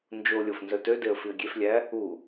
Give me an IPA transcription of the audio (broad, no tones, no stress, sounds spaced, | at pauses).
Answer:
n d͡ʒ o lʲ o f n z œ t ø d e ə̯ f i ə̯ ɡʲ e f lʲ æ | u